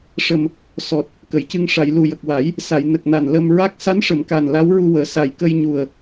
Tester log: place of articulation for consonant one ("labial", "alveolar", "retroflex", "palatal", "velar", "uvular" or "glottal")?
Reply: retroflex